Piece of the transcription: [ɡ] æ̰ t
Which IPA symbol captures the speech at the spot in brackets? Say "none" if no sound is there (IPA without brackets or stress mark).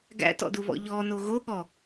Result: ɡ